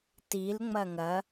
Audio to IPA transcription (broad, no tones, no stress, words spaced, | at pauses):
tilŋ͡mɐ ŋɐ